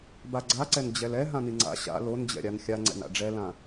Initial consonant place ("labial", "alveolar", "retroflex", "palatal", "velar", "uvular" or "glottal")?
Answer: labial